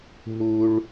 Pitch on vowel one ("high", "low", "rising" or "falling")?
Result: high